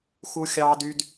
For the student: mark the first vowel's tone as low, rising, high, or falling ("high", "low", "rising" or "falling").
high